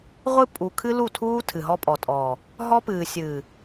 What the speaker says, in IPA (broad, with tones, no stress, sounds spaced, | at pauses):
ʁʷ ɨ˦ pʼ u˨ kʰ ɨ˦ l u˦˨ tʰ uː˦ tʰ ɨ˨ ɦ ɔ˦ pʼ ɔ˨ tʼ ɔː˨ | ɦ ɔ˦ p ɨː˨ sʲ ɨː˨